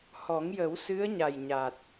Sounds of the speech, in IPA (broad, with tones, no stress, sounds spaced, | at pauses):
h ɔ˨˩˦ ŋ j ə˨˩˦ w s ɨ˧˥ ə̯ ɲ a˨˩ j ɲ aː˨˩ t̚